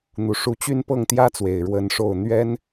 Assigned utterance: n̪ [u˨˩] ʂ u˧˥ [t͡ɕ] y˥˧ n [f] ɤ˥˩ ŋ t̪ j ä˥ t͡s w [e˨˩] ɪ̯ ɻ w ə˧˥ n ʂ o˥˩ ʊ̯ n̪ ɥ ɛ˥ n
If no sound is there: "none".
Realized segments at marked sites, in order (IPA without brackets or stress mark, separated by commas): u˨˩, t͡ɕ, p, e˨˩